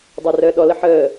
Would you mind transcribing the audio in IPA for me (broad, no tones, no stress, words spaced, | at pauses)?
dˤarəːɗɔlə ħəː